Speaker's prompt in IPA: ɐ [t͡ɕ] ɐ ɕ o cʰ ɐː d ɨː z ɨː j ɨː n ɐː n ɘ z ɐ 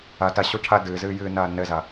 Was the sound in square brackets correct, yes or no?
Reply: no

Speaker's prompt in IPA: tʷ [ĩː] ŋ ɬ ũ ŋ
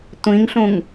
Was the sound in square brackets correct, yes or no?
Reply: no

